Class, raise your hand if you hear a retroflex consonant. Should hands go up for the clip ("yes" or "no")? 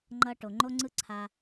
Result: yes